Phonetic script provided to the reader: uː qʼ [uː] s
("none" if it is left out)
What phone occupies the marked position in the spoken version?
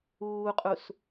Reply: u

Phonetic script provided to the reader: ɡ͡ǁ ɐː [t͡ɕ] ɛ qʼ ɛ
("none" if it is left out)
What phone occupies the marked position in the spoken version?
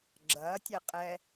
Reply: tʲ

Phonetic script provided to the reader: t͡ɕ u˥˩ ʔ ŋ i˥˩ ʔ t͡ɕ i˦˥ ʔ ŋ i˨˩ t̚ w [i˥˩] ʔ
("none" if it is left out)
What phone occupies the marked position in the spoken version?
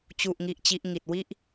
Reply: i˥˩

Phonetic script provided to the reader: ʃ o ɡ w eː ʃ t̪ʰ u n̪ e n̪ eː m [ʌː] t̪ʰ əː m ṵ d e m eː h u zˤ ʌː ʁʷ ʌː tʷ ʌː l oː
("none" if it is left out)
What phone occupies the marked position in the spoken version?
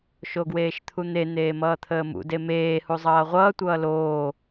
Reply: ʌː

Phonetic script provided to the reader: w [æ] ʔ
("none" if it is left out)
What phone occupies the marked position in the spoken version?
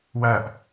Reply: æ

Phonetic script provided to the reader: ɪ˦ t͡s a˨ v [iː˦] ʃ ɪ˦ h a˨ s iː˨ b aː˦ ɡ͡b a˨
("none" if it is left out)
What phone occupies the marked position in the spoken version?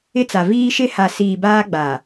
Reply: iː˦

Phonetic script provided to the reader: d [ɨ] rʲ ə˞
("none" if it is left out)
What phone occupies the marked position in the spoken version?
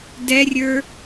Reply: ɛ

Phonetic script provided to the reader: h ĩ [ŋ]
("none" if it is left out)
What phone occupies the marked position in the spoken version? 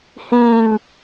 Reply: ŋ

